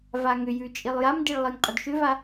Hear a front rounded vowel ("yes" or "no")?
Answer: yes